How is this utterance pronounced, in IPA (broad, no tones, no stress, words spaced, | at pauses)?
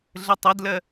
ɮətˤɐdlɜ